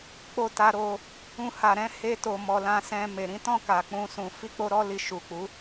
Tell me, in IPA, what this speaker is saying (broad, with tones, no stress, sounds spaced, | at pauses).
k͡p o˧ t a˧ ɾ o˧ | ũ˧ h a˨ ɾ ɛ̃˨˦ h e˧ t o˨ m ɔ˨ l ã˧ s ɛ̃˧ m e˨ ɾ ĩ˨˦ t ɔ̃˦˨ k a˨ k͡p ũ˧ s ũ˨ f i˧ k͡p o˧ ɾ ɔ˧ l i˨ ʃ u˨ k͡p u˨˦